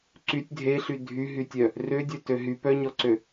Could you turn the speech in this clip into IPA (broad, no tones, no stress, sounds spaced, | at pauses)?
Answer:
ǀ y tʲ dʱ e ɬ y dʱ y ɦ y tʲ œ | r ø dʲ œ t ø ɦ y p œ ɲ ɔ ǀ ø